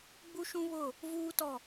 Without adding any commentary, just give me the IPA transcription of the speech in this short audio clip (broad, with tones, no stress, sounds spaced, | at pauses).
ɡ͡b u˦ ʃ ũ˦ β ʊ˦˨ | v uː˦ t ɔ˦˨